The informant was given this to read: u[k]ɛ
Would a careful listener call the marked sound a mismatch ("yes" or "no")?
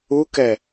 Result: no